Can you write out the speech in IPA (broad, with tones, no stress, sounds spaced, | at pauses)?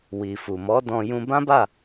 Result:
w i˨ f u˨ m ɔ˨˦ d ɔ̃˧ j ũ˧ b ã˦ b a˦˨